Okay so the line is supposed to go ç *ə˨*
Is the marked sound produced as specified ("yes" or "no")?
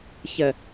yes